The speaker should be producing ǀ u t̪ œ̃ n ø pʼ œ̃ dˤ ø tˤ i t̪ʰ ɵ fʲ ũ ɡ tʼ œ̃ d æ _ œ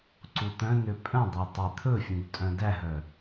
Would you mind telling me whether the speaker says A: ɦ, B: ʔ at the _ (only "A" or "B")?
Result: A